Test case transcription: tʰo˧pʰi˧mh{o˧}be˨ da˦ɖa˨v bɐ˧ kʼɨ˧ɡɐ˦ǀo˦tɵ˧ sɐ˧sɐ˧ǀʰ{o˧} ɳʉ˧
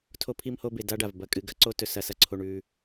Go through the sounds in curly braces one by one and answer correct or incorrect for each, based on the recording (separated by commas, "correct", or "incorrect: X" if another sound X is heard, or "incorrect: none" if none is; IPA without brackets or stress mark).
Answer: correct, correct